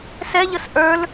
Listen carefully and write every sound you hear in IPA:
s ɛ ʎ ə s ʔ ə˞ l

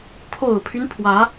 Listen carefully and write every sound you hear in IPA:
kʰ o˨˩ ʊ̯ pʰ y˦ n pʰ w ä˧˥

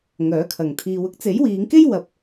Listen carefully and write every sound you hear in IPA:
ŋ œː˨˥ kʰ ɐ˨ ŋ t̪ʰ iː˧ w ʊ˥ k̚ t͡s e˨˥ j w iː˨˧ ŋ k e˥ j w ɐ˨˥ p̚

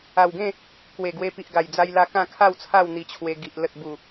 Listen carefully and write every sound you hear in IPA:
a˨˩ w ɡ ẽ˥˧ | k w e˨˩ ɡ w e˧ p i˨ ʔ ɡ a˨˩ j d͡z a˧ j l a˧ k ã˥˧ kʰ a˥˧ w t͡sʰ a˥˧ w n̪ i˧ t͡ɕʰ w e˧ ɡ i˨ ʔ l ə˨ t̚ b u˨˩

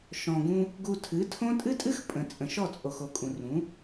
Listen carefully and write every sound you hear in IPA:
ʃ ɔ̃˨ ɡ ũ˧ | ɡ u˧ tʰ ɨ˨˦ tʰ õ˦ tʼ ɨ˦ tʼ ɨ˦ x pʼ ə̃˨ t͡sʼ ə̃˨ ʃ ɔ˦˨ t͡sʼ o˨ x o˨ kʼ ũ˨ r ũ˨˦

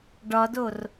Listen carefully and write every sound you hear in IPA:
ɖ ɒ d o r

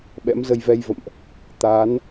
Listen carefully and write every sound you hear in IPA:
ɓ ɛ̰˧˥ m z ə˧ j v ɛ˧ j v ə̰˧˨ m ʔ | t̪ aː˨˦ n

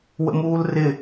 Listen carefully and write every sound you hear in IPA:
w ə̰ m uː l r ɪ

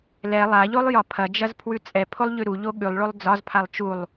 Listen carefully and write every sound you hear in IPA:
l ɛ lˠ a ʎ o lˠ j ɒ pʰ ɐ d͡ʒ ɐ z pʰ w ʉ t͡sʼ ɛ pʰ o lˠ ʎ ʉ ɾ u ʎ o ɠ ʉ lˠ ɭ o lˠ d͡z ɒ z pʰ a lˠ t͡ʃ u lˠ

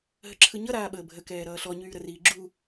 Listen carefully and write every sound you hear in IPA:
ɦ ə ǁʰ ɯ ɲ ʌ ɾ aː ɓ əː bʱ ə k ɛː ɾ ʌː ɬ ɔ ɲ yː ɾ ə r iː ɡ͡ǁ u

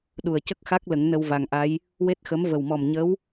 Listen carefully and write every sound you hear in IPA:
ɗ u˨˩ ə̯ c ə˦˥ k̚ x a˦˥ k̚ l ə˨˩˦ ŋ n ə˧ w v a˨˩ ŋ ʔ a˧˥ j | w e˦˥ t̚ x ə˧˥ m v ə˨˩ w m ɔ˨˩ m ɲ ə˧˥ w

